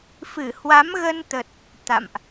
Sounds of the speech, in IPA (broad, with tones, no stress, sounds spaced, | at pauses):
f ɨ˧˩ h w a˨˦ m ɣ ə˧ n t̪ ə˨˩ t̚ | t̪ a̰˧˨ m ʔ